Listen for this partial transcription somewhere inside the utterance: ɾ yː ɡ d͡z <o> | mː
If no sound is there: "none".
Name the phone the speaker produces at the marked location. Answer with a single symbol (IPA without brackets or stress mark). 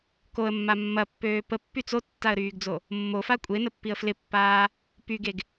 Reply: o